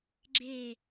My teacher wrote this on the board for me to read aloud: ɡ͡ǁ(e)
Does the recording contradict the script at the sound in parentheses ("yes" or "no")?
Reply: no